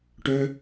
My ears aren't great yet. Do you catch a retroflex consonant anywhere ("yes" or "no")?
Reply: yes